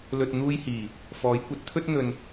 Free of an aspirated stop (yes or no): no